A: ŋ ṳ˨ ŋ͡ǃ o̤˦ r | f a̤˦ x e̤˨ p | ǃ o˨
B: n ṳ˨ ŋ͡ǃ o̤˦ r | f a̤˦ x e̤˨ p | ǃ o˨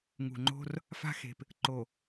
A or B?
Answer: A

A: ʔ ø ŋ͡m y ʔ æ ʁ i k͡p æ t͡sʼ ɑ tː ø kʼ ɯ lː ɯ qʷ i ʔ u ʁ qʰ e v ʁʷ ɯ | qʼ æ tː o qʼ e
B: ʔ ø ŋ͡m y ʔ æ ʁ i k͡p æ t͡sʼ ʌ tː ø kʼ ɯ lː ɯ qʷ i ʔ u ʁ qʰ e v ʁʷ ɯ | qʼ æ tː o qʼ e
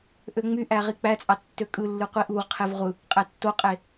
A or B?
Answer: A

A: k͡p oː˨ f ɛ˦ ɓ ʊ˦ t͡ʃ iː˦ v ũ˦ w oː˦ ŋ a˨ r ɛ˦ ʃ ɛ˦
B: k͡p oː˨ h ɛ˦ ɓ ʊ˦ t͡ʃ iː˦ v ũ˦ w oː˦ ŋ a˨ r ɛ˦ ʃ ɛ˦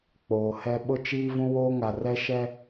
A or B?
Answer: B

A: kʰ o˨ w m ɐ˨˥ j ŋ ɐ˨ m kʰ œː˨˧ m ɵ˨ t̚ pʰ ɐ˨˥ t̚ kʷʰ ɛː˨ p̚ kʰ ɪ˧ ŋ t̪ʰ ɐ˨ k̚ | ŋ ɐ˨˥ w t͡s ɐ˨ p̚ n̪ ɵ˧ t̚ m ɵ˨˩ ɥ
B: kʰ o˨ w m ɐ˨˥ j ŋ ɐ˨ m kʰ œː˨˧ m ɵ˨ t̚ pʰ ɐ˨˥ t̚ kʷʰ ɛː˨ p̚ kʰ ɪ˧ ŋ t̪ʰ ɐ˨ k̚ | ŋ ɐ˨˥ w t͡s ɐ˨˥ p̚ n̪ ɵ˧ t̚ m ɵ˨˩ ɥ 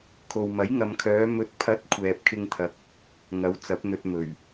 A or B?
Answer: B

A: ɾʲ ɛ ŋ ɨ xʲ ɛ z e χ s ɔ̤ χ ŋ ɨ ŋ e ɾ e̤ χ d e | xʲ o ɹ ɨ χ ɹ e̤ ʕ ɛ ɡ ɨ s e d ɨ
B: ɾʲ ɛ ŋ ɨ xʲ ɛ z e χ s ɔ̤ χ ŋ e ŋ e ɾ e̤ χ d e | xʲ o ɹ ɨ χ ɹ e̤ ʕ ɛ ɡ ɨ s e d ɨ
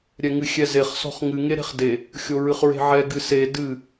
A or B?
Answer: A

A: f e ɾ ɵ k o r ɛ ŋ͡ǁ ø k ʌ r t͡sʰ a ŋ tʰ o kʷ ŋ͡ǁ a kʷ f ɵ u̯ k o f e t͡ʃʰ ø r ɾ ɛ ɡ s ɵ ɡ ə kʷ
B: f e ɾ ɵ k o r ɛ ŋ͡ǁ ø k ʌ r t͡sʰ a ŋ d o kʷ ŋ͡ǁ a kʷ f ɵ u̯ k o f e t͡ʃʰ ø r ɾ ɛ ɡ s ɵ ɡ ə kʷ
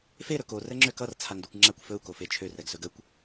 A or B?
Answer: B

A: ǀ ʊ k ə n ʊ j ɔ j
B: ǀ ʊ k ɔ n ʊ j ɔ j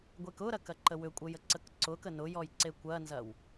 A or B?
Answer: A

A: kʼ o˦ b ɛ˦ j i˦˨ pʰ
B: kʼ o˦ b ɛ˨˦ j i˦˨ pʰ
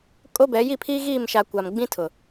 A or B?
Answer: B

